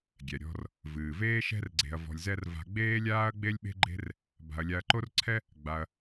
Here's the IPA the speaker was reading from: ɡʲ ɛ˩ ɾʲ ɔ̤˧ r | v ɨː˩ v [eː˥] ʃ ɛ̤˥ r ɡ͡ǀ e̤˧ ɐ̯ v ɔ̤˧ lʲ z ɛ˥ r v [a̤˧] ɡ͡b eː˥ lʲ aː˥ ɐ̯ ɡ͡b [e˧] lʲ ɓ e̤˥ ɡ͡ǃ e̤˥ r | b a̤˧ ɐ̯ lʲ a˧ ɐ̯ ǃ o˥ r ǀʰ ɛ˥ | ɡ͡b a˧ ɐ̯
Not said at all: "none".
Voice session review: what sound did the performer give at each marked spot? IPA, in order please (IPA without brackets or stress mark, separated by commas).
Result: eː˥, a̤˧, e˥